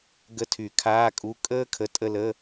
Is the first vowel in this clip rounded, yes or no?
no